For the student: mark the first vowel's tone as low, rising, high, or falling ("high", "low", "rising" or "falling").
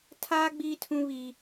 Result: high